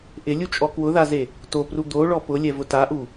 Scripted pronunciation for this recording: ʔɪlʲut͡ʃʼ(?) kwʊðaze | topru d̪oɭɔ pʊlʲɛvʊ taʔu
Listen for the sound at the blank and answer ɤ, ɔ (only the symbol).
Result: ɔ